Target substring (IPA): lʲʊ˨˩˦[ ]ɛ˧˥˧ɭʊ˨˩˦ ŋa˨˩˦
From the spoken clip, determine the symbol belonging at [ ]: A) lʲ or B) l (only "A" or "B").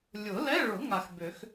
B